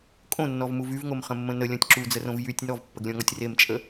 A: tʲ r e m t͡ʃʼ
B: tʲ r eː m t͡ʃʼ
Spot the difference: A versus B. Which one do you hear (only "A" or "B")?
A